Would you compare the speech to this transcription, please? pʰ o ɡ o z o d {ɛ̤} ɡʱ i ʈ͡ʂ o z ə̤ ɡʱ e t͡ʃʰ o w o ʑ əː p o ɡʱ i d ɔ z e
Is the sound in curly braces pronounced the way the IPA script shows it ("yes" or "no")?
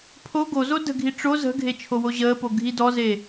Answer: no